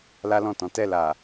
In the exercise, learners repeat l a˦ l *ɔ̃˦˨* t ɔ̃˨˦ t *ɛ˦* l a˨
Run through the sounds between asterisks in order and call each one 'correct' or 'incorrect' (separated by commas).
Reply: correct, incorrect